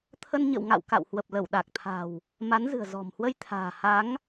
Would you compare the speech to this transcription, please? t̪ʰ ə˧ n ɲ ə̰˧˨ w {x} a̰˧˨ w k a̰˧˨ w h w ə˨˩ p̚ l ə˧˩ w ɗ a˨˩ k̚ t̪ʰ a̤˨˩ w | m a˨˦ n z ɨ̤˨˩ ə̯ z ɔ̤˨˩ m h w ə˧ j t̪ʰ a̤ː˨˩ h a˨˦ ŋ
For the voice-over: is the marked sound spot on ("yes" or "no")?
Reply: no